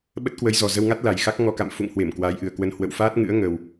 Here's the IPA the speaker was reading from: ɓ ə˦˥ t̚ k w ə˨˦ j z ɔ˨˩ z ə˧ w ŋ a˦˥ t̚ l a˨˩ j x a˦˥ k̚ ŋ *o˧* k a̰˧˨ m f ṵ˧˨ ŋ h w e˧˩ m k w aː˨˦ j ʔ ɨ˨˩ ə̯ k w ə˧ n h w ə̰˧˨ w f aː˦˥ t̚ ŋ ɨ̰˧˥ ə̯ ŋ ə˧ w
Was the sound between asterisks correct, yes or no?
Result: no